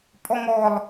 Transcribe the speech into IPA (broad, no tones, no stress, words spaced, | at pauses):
pʼɔŋɔlˠ